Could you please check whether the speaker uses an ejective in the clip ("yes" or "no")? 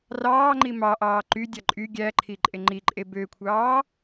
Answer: yes